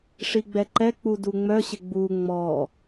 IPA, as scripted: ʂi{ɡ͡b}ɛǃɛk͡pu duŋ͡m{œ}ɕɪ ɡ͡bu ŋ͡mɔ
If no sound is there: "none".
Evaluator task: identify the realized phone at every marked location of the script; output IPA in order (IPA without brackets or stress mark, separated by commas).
ɡ͡b, œ